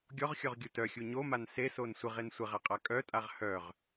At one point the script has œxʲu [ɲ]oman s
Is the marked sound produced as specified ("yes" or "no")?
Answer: yes